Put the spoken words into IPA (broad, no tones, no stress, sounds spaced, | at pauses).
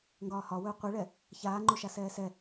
ŋ ɡ ɒː h ɒ w ɵː qʷ e ɭ ɛ | ç aː ŋ͡ǃ u ʃ a s ɛː s ɛ